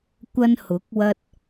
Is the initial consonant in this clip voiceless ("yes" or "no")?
yes